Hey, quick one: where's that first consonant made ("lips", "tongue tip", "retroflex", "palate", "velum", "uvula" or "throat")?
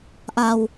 throat